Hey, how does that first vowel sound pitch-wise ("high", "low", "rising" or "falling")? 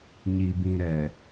low